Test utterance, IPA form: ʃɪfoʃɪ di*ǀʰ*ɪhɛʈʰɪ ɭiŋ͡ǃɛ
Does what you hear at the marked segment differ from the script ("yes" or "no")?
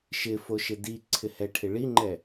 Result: no